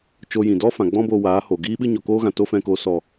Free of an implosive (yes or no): no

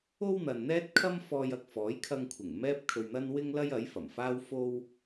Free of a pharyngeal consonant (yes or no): yes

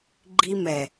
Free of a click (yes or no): no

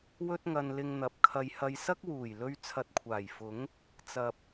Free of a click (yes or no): yes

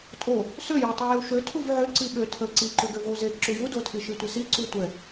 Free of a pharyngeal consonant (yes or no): no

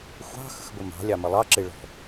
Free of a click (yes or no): no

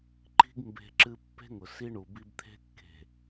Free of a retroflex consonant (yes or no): no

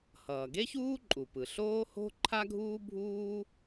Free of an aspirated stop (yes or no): no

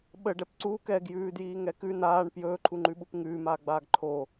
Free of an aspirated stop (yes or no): no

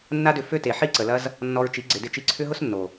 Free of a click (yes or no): no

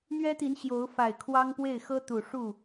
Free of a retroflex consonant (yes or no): no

